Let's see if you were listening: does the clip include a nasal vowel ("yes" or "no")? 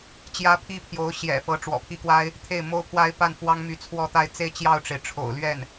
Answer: no